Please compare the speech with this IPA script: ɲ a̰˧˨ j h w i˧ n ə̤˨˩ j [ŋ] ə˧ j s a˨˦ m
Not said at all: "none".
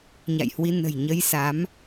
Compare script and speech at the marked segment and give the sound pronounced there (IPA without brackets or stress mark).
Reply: ɲ